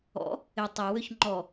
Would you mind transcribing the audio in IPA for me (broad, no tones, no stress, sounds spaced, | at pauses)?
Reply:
ɔ̰ | ɪ tˤ ɛ w ø ç ŋ͡ǃ ɔ